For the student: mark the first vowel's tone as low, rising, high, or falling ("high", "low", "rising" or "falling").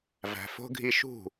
low